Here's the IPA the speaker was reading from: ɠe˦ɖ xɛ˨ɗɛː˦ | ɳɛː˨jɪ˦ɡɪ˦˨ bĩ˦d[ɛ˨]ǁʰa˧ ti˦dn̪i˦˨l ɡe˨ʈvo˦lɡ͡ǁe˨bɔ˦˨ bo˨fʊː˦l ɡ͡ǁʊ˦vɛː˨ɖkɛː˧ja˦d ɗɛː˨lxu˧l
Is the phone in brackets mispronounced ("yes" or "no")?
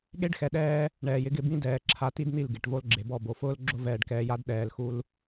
yes